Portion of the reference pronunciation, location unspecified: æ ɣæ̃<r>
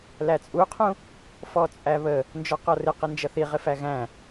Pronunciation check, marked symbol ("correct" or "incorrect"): incorrect